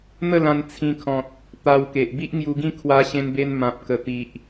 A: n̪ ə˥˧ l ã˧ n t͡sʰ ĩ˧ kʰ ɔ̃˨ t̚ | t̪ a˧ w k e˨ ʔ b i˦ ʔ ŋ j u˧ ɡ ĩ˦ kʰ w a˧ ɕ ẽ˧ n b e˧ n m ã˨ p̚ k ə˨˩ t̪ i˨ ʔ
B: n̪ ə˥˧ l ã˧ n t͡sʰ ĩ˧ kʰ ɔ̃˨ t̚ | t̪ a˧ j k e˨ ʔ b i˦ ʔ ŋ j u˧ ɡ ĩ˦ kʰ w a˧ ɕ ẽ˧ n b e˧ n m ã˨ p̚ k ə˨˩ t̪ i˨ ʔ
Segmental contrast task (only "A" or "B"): A